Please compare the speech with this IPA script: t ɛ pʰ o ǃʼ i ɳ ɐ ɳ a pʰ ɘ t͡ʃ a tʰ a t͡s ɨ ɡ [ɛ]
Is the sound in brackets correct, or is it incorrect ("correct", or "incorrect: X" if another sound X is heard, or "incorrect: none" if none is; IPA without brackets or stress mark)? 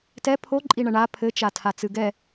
correct